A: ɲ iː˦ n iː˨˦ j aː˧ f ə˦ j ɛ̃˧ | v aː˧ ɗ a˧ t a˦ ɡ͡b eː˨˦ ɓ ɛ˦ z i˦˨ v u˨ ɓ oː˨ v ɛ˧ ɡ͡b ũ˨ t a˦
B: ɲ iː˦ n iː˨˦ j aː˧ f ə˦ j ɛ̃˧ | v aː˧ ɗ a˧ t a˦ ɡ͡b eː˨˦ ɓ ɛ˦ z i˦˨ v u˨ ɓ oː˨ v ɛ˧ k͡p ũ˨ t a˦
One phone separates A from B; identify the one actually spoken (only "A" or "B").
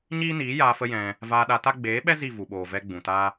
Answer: A